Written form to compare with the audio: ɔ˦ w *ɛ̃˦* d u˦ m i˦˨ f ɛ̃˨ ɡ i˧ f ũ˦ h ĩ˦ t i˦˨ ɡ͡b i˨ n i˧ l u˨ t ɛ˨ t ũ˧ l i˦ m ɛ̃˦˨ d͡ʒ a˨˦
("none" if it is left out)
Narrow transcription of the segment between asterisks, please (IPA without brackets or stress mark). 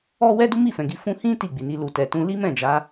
ɛ˦